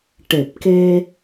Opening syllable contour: low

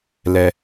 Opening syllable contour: low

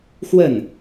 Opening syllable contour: falling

